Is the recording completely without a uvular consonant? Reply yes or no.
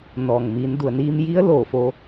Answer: yes